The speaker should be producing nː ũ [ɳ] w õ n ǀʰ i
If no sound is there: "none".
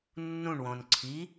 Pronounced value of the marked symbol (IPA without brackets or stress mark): ɳ